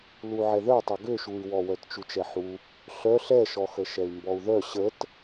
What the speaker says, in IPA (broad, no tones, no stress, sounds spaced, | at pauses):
l u ʕ ɛ ð œ tˤ o ɡ ø ʃ u y̯ w ɔ w œ t t͡ʃ u t͡ʃ ɛ ħ u | ɬ œ ɬ ɛ ʃ ɔ x ə ʃ ɛ y̯ m b ɔ u̯ ð œ ɕ ə t